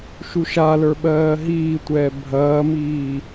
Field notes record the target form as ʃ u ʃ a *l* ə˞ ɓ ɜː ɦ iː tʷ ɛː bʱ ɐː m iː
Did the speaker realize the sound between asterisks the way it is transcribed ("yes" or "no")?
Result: yes